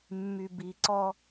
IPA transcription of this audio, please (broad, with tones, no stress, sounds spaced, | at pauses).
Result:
mː y˨ b i˨ ǀ ɔ˦